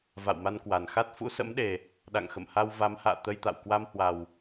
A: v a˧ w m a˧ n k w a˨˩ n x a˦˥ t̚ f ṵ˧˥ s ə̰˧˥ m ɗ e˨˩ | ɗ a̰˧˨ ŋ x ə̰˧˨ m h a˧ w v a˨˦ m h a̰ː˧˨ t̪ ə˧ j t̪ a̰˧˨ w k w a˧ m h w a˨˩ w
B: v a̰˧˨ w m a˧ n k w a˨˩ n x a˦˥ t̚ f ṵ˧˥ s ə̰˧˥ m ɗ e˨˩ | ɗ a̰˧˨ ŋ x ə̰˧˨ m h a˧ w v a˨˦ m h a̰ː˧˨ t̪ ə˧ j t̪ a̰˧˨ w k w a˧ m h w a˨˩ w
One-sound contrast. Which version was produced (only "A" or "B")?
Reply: B